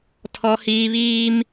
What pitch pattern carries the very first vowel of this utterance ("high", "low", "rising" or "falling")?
high